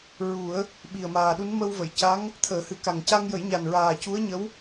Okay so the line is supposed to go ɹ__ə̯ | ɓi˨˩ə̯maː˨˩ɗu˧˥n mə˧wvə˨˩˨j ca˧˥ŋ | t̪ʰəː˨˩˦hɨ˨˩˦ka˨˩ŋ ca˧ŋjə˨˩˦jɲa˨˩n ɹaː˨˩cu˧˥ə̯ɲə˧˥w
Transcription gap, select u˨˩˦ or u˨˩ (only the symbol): u˨˩˦